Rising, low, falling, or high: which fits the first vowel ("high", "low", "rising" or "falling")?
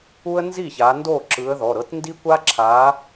high